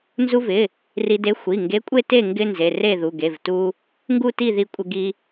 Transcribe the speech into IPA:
n z u˧ v ɪ˩˧˩ | r i˧ d e˧˥ xʷ i˩˧˩ ŋ ɡ e˧˥ kʷʼ e˥˨ t e˥˨ ŋ ɡ ɪ˧ n z e˩˧˩ r e˥˨ ð u˩˧˩ ɡ e˩˧˩ v t u˧ | ŋ ɡ u˥˨ t i˥˨ ð i˧ kʷʼ ɪ˧ ɡ i˧

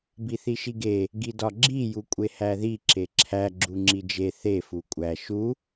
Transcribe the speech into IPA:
b i θ i ʃ i ɡ e | ɡ i d ɒ ɡ͡ǁ i j u kʷʼ e h æ ð i ǁ e ǁʰ æ ɡ͡ǁ u ŋ͡ǁ i d͡ʒ e θ e f u kʷʼ æ ʃ u

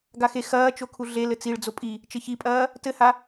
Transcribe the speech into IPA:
ɡ a x e x ɐː t͡ʃ o kʰ u ɮ e l ɘ t͡s i ɭ d͡z o pʼ i | t͡ʃ ɘ ç i pʼ ɐː | t ɘ h a

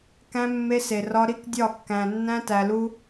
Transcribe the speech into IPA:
k æ̃˦ mː e˦ s e˨ r ɒ˦ ɾ i˦ k dʲ ɒ˦˨ kː æ̃˨ nː æ̃˦ t æ˨ l u˦

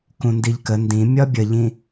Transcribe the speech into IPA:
k ũ n d i ʎ k ə n d ĩ mʲ ɒ bʲ ə ʎ ĩ

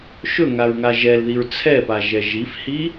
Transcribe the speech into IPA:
ʃ ɵ ŋ a ɹ ŋ a ʒ ɛ l ð i ɹ t͡sʰ ɛ p a ʒ ɛ ʒ i f h i

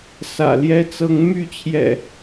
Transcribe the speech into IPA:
s ä̰˨˩ l j ɛ˦ t͡s ɤ˨˦ ŋ m y˥˨ t͡ɕʰ j ɛ̰˨˩

